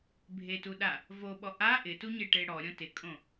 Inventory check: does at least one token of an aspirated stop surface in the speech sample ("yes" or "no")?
no